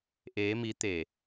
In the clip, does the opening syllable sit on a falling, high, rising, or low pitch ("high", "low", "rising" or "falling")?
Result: rising